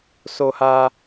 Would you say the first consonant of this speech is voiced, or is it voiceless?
voiceless